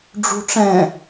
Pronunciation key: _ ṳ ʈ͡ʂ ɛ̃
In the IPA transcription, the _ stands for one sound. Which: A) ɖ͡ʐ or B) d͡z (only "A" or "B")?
A